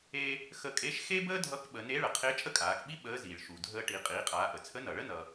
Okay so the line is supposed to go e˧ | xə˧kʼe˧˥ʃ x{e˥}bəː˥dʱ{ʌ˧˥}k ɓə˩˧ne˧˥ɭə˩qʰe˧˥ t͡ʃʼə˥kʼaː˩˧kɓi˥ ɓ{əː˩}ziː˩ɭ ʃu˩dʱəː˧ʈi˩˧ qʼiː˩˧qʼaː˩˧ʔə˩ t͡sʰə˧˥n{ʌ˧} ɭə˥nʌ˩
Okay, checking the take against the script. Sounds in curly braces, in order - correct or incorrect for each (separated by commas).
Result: correct, correct, incorrect, incorrect